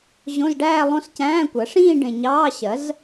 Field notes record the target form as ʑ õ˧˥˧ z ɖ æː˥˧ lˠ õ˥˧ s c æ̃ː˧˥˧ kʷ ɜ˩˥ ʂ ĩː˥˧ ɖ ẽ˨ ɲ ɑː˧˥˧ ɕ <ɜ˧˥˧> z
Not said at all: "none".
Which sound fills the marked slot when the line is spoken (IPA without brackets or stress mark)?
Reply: ɜ˩˥